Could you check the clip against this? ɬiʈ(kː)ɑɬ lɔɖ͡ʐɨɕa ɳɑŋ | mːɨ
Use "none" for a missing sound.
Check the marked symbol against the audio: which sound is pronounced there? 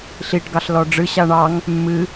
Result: ɡ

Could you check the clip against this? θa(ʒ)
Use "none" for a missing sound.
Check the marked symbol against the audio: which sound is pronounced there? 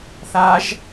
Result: ʒ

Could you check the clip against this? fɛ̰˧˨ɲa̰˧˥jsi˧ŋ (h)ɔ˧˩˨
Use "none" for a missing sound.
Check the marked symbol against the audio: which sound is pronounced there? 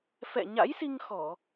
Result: x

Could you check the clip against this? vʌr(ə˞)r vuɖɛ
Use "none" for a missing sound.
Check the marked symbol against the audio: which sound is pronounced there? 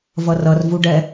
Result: ʌ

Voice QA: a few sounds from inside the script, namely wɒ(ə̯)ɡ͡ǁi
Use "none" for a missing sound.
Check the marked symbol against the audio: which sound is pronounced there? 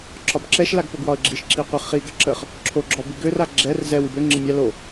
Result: ə̯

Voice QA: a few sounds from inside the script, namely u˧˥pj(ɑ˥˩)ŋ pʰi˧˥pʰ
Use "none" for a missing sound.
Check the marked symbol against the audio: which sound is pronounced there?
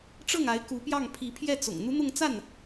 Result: ɑ˥˩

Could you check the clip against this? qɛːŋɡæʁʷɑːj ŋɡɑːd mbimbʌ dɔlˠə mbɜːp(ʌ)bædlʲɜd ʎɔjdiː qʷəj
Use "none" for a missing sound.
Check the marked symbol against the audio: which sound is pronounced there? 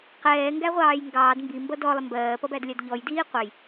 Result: ʌ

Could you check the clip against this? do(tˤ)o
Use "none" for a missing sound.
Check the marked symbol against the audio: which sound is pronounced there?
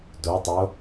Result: tˤ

